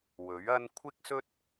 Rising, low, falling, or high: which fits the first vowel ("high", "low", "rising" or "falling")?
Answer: rising